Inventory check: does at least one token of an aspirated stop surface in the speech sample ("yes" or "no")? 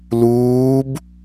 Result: no